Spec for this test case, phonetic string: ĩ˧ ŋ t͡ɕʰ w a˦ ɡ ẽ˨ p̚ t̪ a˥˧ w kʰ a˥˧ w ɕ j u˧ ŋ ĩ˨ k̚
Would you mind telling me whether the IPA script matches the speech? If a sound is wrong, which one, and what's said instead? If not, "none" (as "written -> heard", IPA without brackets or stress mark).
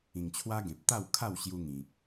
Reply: none